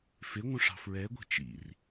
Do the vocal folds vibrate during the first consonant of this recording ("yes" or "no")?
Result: no